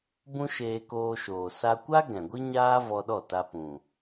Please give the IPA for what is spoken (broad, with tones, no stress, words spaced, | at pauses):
bũ˦ʃeː˧koː˧ʃoː˨ sa˧kʷa˦ ɡɛ̃˨ɡʷi˦ɲaː˦ vɔ˧ɗɔ˦˨ ta˧pũ˨